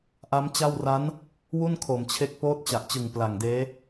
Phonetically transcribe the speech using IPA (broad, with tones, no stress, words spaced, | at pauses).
ʔa˦˥mt͡ɕa˥˩w ra˦˥n | wu˥˩nkʰo˨˩mt͡ɕʰe˦˥k̚ poː˦˥t̚t͡ɕa˨˩ʔt͡ɕɯ˨˩ŋ pla˨˩ŋdeː˦˥